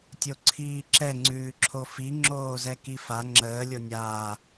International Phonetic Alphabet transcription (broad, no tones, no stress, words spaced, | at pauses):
tʲoǀʰiːǁɛ ŋ͡ǀʉːǁʰofi ŋ͡ǁoːzɛkifa ŋ͡ǁəː lʲonʲaː